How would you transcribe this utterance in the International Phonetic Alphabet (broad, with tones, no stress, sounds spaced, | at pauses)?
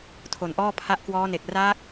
tʰ o˨˩ n ʔ ɔː˥˩ pʰ a˦˥ ʔ k w ɔː˦˥ n e˨˩ k̚ r aː˦˥ k̚